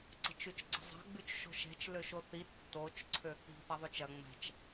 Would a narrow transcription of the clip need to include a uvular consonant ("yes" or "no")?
no